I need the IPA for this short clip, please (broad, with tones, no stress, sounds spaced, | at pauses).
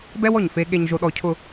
b ɛ˥ w ɔ˧˩ ɲ f e˧ ɠ e˧ ɲ ʒ o˧ ɗ ɔ˧ cʰ ʊ˥˧